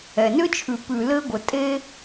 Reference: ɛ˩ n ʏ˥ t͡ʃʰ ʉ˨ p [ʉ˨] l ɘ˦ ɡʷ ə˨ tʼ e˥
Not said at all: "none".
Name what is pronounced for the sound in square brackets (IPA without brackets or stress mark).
ʉ˨